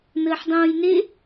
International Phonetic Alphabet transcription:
nəːħdˤõːjne

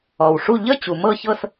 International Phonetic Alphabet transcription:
ɔ˩wʂu˥˨ ʎə˥˨ t͡ɕu˩mɤ˥˨çɤ˥˨s

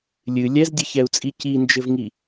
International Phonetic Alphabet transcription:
lʲɨ lʲɛzdʲɨçɛu̯t͡sʼi cind͡ʒɘvŋi

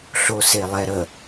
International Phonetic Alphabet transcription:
ɬoselˠɛɾə

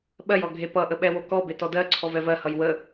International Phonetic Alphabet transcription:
ɓɜjɔ ɡʱepʌʔə ɓɛwokɔbe tɔdɜǀʰɔv ɛvɜhʌj wə

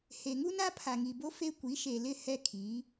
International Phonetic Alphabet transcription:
he˨ŋu˦ na˦pʰa˨ŋi˨bo˦ fe˦ kʷi˨˦ʃe˨lɪ˦˨ hɛ˦kʰiː˨˦

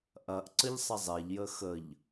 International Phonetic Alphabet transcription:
ʔɐʔǀəʎsˤə zˤeʎjə xəʎ

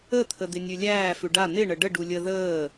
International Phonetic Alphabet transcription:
ət̪ʰə d̪ɪnʲʉlʲæː fʉɖa n̪ɪɳə ɖəɖu lʲə ðəː

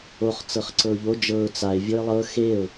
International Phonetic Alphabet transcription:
oχ t͡sɤχǀɤʊ̯ʎo d͡ʒɤʊ̯ t͡saɪ̯ vʲoɪ̯lˠɤ xeʊ̯

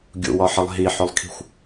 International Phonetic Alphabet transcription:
ɡʲṵwɒħəlˠ ɦiħɵlˠkʰi̤xʷ

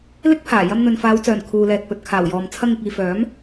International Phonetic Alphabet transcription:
lɪ˥k̚pʰaː˨˩ jɐ˧mn̪ɵ˨nfaː˨˧wt͡sœː˨˩n kʰuː˨lɛː˨t̚ pɵ˨t̚kʰaː˨˩wjɔː˨m t͡sʰɐ˧ŋ ɪ˨k̚iː˨ fœː˨˥m

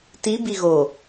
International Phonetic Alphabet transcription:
ti biɣo

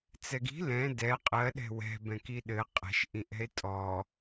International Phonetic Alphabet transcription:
t͡sɛɡi̤ lɛ̃ dɛ qʼɜ ɗɛ̤wɛ̤ bɛ̃kiɗɘ qʼɛ̤ʃ ʔĩʔɛ̤e̯tʼɔ

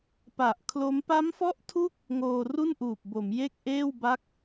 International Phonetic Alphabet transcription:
pa˨˩ʔkʰlo˦˥m pa˦˥mfɔ˦˥ʔtʰu˦˥k̚ | ŋoː˧ru˥˩nʔuː˨˩p̚bo˩˦m je˥˩k̚ʔeː˥˩wba˦˥k̚

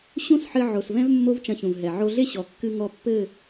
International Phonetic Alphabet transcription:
ɕũ˦sħɘ˧ ʕo˨svɛ̃˦v mːo˦vt͡ʃɐ̃˧çũ˨v ɦɛ˨ʕo˧ɮe˦ ɕɔ˨kːɨ˧ŋɔ˧pːɘ˦˨

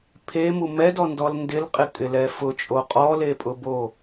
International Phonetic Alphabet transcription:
pʰemu mɛdɔndɔl ndɪlqʼɪkʼɪlɛ fʊt͡ʃʼo qʼɔlepʼʊbo

